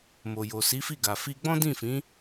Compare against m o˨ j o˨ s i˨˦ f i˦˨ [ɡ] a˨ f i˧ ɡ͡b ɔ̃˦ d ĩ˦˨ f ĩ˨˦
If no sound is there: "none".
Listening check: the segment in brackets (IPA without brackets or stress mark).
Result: ɡ